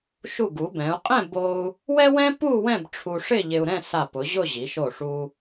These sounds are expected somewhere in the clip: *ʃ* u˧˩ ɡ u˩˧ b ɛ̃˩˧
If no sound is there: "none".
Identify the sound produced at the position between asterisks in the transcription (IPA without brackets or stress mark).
ʃ